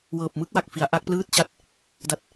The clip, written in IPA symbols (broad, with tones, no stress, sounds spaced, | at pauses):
w ɤː˨˩ p̚ m ɯ˦˥ k̚ w a˨˩ k̚ f i˩˦ a̯ ʔ a˦˥ k̚ p l ɯː˥˩ t̚ t͡ɕ a˦˥ t̚ | d a˦˥ t̚